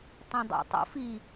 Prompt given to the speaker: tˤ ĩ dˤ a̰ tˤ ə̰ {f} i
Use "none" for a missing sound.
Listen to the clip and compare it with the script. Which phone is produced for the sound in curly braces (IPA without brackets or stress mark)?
f